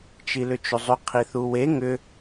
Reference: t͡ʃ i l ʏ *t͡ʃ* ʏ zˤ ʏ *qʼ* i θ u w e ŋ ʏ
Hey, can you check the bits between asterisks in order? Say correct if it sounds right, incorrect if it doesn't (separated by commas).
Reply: correct, incorrect